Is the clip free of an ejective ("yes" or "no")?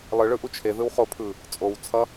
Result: no